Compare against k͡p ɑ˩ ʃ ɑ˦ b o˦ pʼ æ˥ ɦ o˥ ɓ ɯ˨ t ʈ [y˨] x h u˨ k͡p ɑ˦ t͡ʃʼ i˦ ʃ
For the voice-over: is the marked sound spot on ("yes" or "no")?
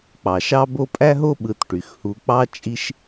no